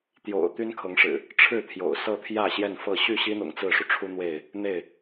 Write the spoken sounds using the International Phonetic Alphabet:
t̪ j o̰˨˩ ʊ̯ t̪ y˦ n kʰ ɤ˨˦ ŋ ʂ ɻ̩˨˩ | ʈ͡ʂʰ ɻ̩˥˨ t̪ʰ j o̰˨˩ ʊ̯ s ɤ˥˨ t̪ʰ j ä˥˨ ɕ j ɛ˥˨ n f ɤ˥˨ ɕ y˥˨ ɕ i˦ n̪ ʊ̰˨˩ ŋ t͡s ɹ̩˥˨ ʂ u˩ ʈ͡ʂʰ u˦ n̪ w e˥˨ ɪ̯ | n̪ e˥˨ ɪ̯

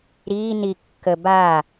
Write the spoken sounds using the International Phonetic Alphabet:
ɾ iː n i kː ə b a

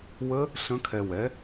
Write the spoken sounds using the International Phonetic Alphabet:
w ə˦˥ | ɬ ə̃˦˥ kʰ ɛ˧ w ɛ˨˥

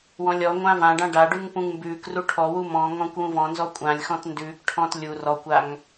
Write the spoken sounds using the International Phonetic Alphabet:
w ɔ̃ lʲ ɔ ŋʷ ã v ã ɖ ã ɖ a ɖ ʉ ŋ p ũ ŋ m b ʉː k r u ʈʰ ɔ w u m ɔ̃ ŋ ɔ̃ kʷ w ũ v ɔ̃ n z ɔ kʷʼ ã lʲ x ɔ̃ t n d ʉː k ʈʰ ɔ̃ː t lʲ u r ɔ kʷ a ŋ

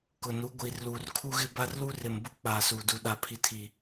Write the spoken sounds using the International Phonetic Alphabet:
k ʊ˨ n u˨˦ ɡʷ iː˨ r l uː˨ r kʰ u˦ ɣ ɪ˦ b a˦ r l u˦ r ɪ˨ m b ʊ˦ k͡p aː˨ s uː˨ d u˨ ɗ a˨ pʰ i˨ tʰ i˨

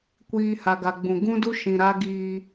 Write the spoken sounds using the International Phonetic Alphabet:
kʷ iː˨ h a˨ ɡ a˨ ɡ͡b ũ˨ ɡ ũ˦ d u˦ ʃ ĩ˨ ɾ a˦ ɡ iː˦

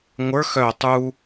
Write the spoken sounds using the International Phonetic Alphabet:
ŋʷ ə˞ x œ tˤ u

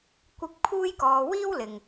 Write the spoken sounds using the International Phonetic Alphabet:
kʷ ɪ˥ k̚ pʰ uː˥ j k ɔː˧ w iː˥ w l ɪ˨ ŋ

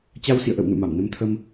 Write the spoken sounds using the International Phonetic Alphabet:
t͡ɕ a˧ w s ḭ˧˨ ə̯ ʔ ə̰˧˨ w n ṵ˧˨ m a˧˩ m n ə˧ m t̪ʰ ə˧ m

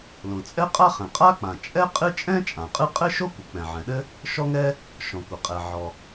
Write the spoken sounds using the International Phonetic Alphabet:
l õ˩ t͡sʼ ɛ˥ qʼ a˥ χ ɛ̃˩ qʼ a˥ k͡p ã˩ t͡ʃʼ ɛ˥ qʼ ɨ˥ t͡ʃʼ ɛ̃˥ t͡ʃʼ ã˩ qʼ ɨ˥ qʼ ɘ˥ ʃ o˥ kʷ ɨ˩ k͡p ɛ̃˩ ʕ ɛ̃˩ ɗ ɘ˥ | ʃ ɔ˥ ŋ ɛ˥ | ʃ ɔ̃˩ kʷ ɘ˩ qʼ ɛ˩ ʕ ɔ˩

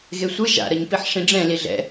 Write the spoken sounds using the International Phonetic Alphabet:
ɣ e sʷ ɯ ʒ a̰ ɾ ʌ ɲ p i ħ ʂ ĩ ɖ͡ʐ ɛ̃ l i ɮ ɛ̰

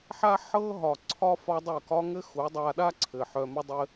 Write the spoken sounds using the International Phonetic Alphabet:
ħ a˦ ħ ɤ˧ ɦ ɒ˨ ǀʰ ɒ˦ f ɒ˦ dˤ œ˦˨ k ɒ˦ ŋ ɘ˦ x u˨˦ dˤ a˧ ɗ a˦ ǀʰ ɘ˨ ħ œ˧ m ɘ˦ dˤ ɘ˦

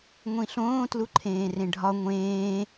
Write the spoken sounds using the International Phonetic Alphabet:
ŋʷ ĩ ɬ õː t l u ǃʰ ẽː r ẽ ɖʱ ɒ ŋʷ ẽː

